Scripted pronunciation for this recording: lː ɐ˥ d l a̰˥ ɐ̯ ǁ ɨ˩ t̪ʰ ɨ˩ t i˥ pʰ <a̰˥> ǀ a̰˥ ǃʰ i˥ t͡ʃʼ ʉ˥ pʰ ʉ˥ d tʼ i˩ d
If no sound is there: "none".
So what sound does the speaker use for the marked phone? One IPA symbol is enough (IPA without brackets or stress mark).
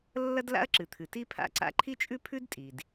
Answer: a̰˥